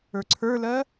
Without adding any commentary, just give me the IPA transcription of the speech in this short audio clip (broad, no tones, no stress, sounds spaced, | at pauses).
ə˞ ǀʰ ə˞ l ɜ